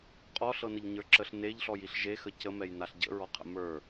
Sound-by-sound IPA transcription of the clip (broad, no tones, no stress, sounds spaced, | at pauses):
qʼ ɔ ɬ ɤ n ə ʎ ɲ ə˞ ǁ ə ɬ n e ʎ ɬ ɔ j i ɬ ʒ e x ə c ə m ɛ j n a ɬ ɟ ə̰ ɹ ɔ qʰ ə̰ m ə˞